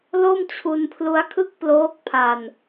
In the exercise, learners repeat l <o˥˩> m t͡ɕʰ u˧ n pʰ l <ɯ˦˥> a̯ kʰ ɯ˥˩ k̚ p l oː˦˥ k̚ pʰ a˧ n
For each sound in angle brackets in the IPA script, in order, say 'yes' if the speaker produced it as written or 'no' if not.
yes, no

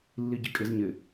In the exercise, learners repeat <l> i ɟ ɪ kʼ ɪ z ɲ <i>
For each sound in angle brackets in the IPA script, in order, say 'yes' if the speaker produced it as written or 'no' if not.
no, no

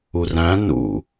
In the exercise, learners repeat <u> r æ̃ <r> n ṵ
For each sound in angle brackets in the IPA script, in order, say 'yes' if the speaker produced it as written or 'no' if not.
yes, no

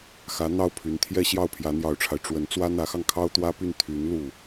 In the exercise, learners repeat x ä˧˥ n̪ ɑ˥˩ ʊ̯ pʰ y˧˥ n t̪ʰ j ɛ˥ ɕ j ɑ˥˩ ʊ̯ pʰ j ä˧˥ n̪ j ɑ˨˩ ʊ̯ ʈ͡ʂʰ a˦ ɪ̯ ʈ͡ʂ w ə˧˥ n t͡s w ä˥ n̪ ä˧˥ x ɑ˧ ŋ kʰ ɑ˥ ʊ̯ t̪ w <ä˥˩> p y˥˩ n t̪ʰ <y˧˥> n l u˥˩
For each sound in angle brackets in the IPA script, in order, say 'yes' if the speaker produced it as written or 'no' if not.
no, yes

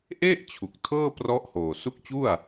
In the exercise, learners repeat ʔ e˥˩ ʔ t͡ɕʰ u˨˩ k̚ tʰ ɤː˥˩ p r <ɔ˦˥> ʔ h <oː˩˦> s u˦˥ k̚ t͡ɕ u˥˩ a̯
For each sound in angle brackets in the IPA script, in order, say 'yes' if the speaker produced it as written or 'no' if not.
yes, no

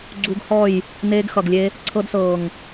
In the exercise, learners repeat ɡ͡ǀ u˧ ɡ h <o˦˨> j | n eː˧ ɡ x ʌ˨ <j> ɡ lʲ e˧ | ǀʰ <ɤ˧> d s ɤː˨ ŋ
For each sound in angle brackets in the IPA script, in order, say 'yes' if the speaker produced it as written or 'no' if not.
no, no, yes

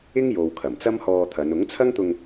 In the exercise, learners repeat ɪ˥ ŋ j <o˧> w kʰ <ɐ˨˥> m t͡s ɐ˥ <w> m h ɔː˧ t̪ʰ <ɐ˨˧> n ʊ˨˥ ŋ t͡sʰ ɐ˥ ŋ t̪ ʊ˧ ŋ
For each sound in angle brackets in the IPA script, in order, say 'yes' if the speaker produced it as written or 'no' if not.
no, no, no, yes

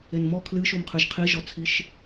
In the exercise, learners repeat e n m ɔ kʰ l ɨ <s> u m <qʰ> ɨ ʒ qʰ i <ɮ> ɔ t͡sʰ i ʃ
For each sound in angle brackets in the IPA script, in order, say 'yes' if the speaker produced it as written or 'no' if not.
no, yes, no

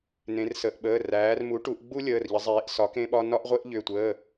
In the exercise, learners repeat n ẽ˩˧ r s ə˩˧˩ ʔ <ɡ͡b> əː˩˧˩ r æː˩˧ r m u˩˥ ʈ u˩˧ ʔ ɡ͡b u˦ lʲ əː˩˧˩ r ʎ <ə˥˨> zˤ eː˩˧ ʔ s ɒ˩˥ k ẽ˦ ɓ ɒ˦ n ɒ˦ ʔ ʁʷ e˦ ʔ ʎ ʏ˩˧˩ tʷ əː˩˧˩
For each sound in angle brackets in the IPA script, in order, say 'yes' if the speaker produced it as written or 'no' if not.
no, no

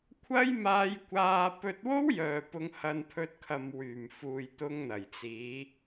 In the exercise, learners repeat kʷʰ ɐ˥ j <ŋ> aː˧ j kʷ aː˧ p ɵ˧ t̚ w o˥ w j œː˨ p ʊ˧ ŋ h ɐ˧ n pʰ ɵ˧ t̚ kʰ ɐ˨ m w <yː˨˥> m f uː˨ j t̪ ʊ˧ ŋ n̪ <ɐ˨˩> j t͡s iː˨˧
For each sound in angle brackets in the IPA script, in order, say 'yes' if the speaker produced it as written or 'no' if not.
no, no, yes

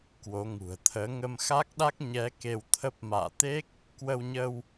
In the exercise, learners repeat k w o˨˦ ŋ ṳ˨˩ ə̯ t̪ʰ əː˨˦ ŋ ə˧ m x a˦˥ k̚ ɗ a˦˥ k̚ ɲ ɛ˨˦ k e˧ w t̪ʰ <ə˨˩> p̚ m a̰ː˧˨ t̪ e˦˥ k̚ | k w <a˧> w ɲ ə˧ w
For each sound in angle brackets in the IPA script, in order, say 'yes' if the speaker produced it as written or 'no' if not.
no, no

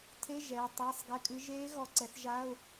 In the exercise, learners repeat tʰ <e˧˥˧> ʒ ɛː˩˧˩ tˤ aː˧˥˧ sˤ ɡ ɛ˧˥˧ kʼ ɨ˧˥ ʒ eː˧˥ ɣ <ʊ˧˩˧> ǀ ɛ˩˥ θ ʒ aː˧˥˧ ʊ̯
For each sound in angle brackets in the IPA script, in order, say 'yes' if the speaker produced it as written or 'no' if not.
yes, no

